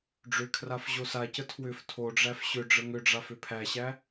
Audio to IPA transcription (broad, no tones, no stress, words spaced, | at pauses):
ɖ͡ʐʏkʰraf ʑosacə tʰwʏf tʰoɖ͡ʐæf ɕʏ ɖ͡ʐəŋʏɖ͡ʐaf ʏpʰæɕæ